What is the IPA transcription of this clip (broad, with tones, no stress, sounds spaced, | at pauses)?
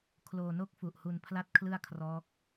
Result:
kʰ l oː˧ n o˥˩ k̚ f u˨˩ ʔ h u˧ n pʰ l a˥˩ t̚ kʰ l ɯ˥˩ a̯ kʰ r ɔː˦˥ k̚